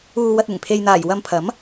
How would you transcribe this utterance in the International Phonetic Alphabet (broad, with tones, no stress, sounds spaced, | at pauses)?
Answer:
uː˧ w ɐ˧ t̚ ɪ˨˩ ŋ pʰ e˨ j n̪ aː˨˩ j w ɐ˧ m pʰ ɐ˨˥ m